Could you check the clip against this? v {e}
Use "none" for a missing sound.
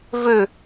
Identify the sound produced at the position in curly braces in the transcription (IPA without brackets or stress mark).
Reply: ø